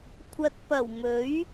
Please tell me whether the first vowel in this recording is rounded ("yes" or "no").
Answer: no